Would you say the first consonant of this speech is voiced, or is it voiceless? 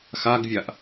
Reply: voiceless